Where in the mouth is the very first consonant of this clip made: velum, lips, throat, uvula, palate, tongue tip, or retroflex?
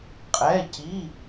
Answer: uvula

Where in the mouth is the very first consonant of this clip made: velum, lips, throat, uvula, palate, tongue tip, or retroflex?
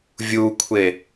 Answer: lips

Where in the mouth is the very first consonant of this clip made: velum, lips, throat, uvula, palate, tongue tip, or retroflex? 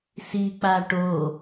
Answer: tongue tip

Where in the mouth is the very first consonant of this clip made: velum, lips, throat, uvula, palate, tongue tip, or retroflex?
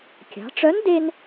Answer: velum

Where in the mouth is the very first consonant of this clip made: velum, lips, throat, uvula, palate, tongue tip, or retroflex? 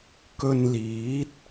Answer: velum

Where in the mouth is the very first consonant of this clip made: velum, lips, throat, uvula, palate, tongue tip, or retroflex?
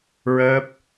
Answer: tongue tip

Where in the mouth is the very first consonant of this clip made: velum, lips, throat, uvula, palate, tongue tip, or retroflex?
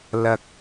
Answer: tongue tip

